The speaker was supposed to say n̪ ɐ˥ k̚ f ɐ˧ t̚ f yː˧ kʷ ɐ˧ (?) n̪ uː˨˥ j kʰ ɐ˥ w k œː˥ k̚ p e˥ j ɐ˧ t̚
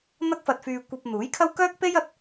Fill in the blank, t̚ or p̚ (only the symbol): p̚